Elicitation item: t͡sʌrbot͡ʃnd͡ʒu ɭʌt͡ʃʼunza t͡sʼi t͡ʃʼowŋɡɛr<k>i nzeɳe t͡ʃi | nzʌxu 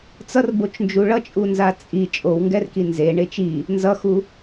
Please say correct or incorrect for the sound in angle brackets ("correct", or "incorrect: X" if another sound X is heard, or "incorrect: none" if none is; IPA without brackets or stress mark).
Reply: correct